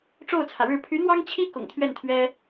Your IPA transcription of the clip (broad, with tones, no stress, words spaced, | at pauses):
ʈ͡ʂo˥˩ʊ̯t͡sʰä˩ɻɻ̩˥˩ pʰy˧˥n̪wɑ˥ŋt͡ɕʰi˥ kʊ̰˨˩ŋt̪ʰɥɛ˥˩nt̪ʰɥɛ˥